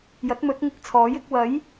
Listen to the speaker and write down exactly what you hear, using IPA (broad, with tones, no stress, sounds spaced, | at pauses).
j ɐ˨˥ t̚ m ɵ˨˥ t̚ ŋ ɪ˧ k̚ t͡sʰ ɔː˨˥ j ɪ˧ k̚ w ɐ˨˥ j